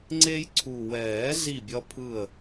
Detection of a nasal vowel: absent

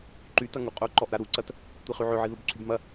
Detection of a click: present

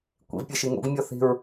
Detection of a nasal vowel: absent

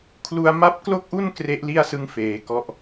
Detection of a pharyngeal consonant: absent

